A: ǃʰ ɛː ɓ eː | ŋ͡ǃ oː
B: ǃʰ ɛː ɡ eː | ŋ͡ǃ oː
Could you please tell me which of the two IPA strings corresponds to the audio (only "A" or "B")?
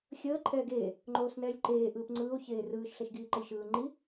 B